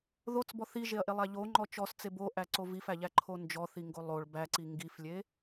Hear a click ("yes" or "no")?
yes